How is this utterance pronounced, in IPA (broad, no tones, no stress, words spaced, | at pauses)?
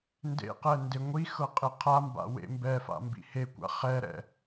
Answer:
ndḛqɛ ndeŋʷixɤ qʼeqʰamba̰ wḛmbɛfa̰ mbḭhekʷa̰ χɛɾɛ̰